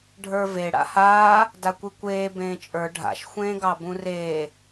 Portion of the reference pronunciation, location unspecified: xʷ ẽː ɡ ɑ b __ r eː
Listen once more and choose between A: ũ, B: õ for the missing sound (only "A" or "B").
A